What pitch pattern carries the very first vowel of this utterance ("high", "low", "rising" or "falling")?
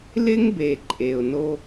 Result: high